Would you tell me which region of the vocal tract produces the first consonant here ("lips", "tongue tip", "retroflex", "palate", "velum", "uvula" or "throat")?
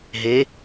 throat